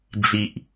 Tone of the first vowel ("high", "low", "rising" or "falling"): low